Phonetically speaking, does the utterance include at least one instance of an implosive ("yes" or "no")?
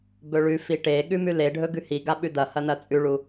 yes